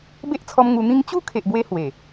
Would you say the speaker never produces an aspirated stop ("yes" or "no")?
no